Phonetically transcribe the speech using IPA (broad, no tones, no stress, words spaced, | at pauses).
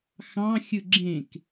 xɑ̃ xʲɯɡ͡ǁẽk